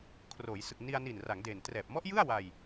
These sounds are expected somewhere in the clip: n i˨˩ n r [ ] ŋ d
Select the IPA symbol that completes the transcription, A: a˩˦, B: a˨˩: A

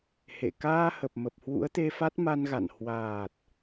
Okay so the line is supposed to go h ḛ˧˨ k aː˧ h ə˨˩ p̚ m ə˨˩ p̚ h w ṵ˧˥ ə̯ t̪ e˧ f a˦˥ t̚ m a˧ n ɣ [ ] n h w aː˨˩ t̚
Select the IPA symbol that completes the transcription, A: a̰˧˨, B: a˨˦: A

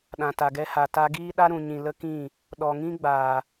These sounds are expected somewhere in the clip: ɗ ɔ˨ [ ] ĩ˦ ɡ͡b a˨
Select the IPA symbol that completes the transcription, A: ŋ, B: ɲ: A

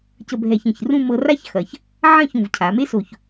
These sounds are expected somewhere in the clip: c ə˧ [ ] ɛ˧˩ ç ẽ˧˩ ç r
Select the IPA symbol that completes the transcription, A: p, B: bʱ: B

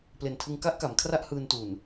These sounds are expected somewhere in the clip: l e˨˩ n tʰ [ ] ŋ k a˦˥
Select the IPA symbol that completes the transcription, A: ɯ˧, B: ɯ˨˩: A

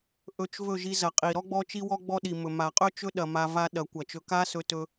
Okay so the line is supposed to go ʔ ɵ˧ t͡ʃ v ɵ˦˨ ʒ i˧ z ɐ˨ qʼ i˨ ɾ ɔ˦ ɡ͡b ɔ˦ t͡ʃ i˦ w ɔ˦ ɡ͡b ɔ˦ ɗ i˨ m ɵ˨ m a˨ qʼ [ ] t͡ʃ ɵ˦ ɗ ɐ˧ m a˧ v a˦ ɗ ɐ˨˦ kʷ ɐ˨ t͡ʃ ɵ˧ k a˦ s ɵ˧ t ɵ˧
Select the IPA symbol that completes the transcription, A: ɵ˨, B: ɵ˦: B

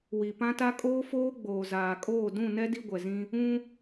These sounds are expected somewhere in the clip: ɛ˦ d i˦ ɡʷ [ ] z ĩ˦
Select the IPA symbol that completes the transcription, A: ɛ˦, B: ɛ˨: B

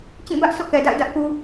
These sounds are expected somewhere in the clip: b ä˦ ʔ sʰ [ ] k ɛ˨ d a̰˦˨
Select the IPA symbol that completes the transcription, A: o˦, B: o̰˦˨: B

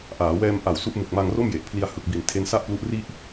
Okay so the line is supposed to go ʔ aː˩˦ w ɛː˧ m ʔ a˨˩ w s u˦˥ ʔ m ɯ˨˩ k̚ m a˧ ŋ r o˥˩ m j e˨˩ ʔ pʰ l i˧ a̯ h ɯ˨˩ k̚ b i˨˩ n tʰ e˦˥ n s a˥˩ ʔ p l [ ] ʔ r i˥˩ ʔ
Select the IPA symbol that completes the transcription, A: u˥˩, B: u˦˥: B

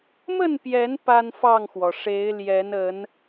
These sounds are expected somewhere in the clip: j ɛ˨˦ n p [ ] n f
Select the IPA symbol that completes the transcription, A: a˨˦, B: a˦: B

